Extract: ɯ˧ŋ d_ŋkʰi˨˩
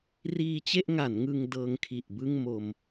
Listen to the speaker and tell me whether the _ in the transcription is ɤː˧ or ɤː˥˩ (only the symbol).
ɤː˧